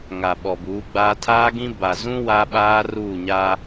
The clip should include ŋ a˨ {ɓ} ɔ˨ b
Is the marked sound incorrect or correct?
correct